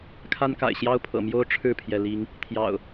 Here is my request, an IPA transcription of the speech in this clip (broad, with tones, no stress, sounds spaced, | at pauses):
kʰ a˦ n k a̰˨˩ ɪ̯ ɕ j ɑ˦ ʊ̯ pʰ ɤ̰˨˩ m j o˦ ʊ̯ ʈ͡ʂʰ ɻ̩˥˨ pʰ j ɛ˩ l i˨˦ ŋ | t̪ʰ j ɑ̰˨˩ ʊ̯